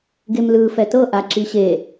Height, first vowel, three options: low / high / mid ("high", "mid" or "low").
mid